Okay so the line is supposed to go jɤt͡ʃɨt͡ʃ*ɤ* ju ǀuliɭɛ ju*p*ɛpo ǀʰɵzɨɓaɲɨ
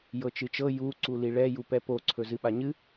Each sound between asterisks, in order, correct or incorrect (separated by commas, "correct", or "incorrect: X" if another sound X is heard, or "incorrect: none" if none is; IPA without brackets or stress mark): correct, correct